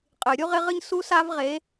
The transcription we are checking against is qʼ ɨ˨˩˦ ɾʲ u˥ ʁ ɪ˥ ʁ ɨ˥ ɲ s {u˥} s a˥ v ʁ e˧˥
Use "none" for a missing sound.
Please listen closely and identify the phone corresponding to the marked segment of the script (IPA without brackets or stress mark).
u˥